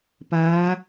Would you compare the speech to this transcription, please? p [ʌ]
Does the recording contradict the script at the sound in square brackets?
yes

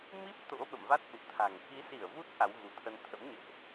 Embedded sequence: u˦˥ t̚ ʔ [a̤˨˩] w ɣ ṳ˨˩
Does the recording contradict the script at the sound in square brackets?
yes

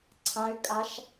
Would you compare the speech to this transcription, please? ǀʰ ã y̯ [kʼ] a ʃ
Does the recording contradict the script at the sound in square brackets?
no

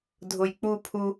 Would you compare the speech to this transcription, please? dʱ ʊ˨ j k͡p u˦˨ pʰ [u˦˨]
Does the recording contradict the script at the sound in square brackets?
yes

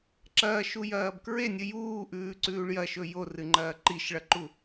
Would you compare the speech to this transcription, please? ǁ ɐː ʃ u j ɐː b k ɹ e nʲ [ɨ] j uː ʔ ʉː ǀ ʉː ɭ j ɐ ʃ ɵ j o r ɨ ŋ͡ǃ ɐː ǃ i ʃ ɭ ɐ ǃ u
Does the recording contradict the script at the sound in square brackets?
no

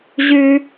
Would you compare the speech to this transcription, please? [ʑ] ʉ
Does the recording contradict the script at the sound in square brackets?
no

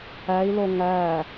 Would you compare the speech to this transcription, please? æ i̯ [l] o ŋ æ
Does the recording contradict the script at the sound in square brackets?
no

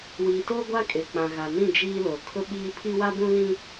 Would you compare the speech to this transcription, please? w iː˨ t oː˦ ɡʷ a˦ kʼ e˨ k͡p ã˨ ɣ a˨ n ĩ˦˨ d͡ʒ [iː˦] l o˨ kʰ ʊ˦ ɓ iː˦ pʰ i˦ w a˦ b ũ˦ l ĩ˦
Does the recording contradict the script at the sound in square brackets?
no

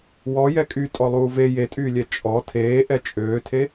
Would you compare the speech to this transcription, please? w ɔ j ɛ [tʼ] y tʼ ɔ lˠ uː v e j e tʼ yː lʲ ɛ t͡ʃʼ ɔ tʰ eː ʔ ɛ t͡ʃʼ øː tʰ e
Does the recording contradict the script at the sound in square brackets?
yes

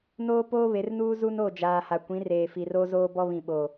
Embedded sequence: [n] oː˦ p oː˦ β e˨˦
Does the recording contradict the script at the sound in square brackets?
no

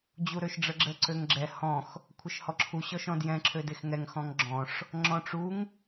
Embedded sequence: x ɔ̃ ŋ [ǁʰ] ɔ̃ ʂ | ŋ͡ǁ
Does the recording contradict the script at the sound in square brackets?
yes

